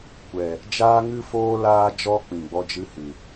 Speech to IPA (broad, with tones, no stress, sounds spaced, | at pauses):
kʷ ɛ˨ | d͡ʒ aː˦ ŋ ɨ˦ f oː˦ l aː˧ d͡ʒ ɔ˧ k͡p ĩ˨ ɡ͡b ɔ˦ d͡ʒ ɨ˦ h ɨ˨